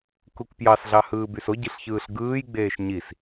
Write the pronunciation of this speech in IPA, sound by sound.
k u k p j ɑ s ɮ ɑ h ɯː b y s o ɟ i ɬ ç ɯː ɬ ɡ ɯː j ɡ͡b eː ʃ ɲ i s

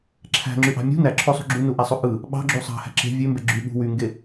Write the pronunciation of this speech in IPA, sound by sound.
ǁʰ æ̤ ŋ͡ǁ y ʔ ɑ̤ mʲ ṳ n æ ǁʰ o sˤ ṳ ɡ͡ǁ u n u ʔ æ sˤ o ʔ ɯ | ɓ ɑ̤ ɡ͡ǁ u sˤ ɑ̤ h æ̤ ǁ e̤ vʲ ø m b e ɡ͡ǁ y ɓ ṳ w y ŋ ɡ e

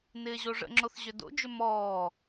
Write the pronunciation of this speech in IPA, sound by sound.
n ɪː ʑ o ʐ ə̰ ŋ͡ǁ o θ ʑ ʏ d o̰ d͡ʒ ʏ m ɔː

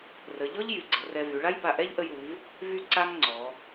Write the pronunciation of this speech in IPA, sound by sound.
r ə˩˧ ʎ ɔ˥ ʎ j y˩˧ ɡ͡ǀ ə˩˧ r ɛ˧ v y˩˧ ɭ a˥ j b a˧˩ ʔ ɛ˥ ʎ ʔ ə˧ j ɾ u˩˧ v | v y˧ ǀ a˧ ŋ ŋ͡ǀ ɔ˩˧

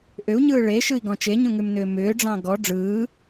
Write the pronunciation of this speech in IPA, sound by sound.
ʔ ʏ u̯ ɲ ɯː ɭ e ʃ ɯ i̯ ɡ ɔ̃ t͡ʃ e ɲ ũ ŋ ʉ m n ʏː m ʏː ɖ͡ʐ ɑ̃ ɡ ɔ ɖ͡ʐ ɯː

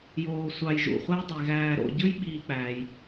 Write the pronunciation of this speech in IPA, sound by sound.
j oː˨ sʷ ɑ˨ j ʒ ṵ˩ χʷ æ˦ j dˤ e˩ ɣ æː˨ ɾ o̰˨ ɟ ɯ˦ j ɓ iː˨ k͡p æː˩ j

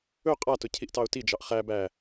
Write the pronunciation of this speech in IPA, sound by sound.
ɵ qʼ a t ʊ cʰ i ʔ t ɑ ʊ̯ t i d͡ʒ ɑ ʔ χ æ b æ

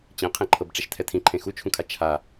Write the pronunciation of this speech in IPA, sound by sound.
t͡ɕ ẽ qʰ ẽ ǃʰ ɤ b ʈ͡ʂ ɛ ʃ tʰ ɛ tʰ ĩ ǃʰ ẽ x u t͡ʃʰ ũ kʰ a t͡ʃʰ a

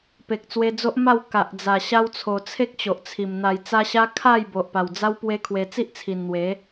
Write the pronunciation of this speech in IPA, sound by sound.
p e˨ k̚ t͡s w e˧ d͡z o˦ ʔ m a˥˧ w k a˨ ʔ d͡z a˨˩ ɕ a˧ w t͡sʰ o˨˩ t͡sʰ e˦ k̚ t͡ɕ o˨ ʔ t͡sʰ i˨˩ m n̪ a˨˩ j t͡s a˧ ɕ a˦ kʰ a˥˧ j b o˨ ʔ p a˨˩ w d͡z a˦ w p w e˦ kʰ w e˧ t͡s i˦ ʔ t͡sʰ i˨˩ n n̪ w e˨˦

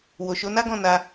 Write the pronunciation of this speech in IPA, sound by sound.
w o˨ ʃ o˨˦ n a˦ ɡ ɔ̃˦˨ n a˧

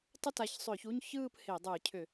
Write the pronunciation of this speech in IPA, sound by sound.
tˤ ə˥˧ t a˨˦ ç sˤ ʏː˧˩˧ ç u˧˥˧ ɲ ç ɯː˥˧ p h e˧˩˧ dˤ ɯː˧˩˧ cʰ ʏ˧˩˧

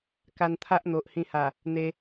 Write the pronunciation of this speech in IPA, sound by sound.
k a˧ n t̪ʰ a˦ ʔ n̪ o˨ ʔ h ĩ˧ h a˨˩ | n̪ e˧

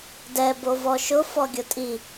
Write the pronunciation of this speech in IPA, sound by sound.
d ɛ b o v ɔ ʃ ʊ f ɔ ɡʲ ʊ tʼ i

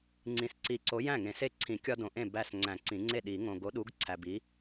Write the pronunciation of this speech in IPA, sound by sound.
ŋ͡ǀ ĩ˨ s ǀ i˨˩˦ ǀ o˨˥ j æ̃˥˩ ŋ ẽ˨˩˦ s e˦ ǀʰ ĩ˨˩˦ kʲ ɒ˦ d õ˨ ʔ ẽ˥˩ b æ˥˩ s ŋ͡ǀ æ̃˨˩˦ ǀ ĩ˨˩˦ ŋ͡ǀ e˥˩ ɗ i˨˩˦ ŋ õ˨ ɡ o˨˥ ɗ u˨˥ ɡ ǀʰ æ˨ b i˨˥

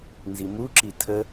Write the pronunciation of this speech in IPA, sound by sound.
n z i m u ǁ i tʰ ə

